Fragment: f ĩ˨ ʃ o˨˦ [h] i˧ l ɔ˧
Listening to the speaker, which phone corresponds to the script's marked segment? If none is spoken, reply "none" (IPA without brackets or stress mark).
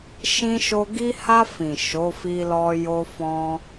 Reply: f